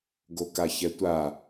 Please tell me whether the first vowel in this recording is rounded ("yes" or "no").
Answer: yes